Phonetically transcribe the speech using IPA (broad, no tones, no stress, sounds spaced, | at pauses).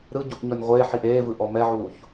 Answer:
ɾ ɯ ɟ u ʔ ɲ ɔ nʲ ʁʷ e ħ i ʔ eː v ɯ ʔ ɔ m ɛ ʕ uː ç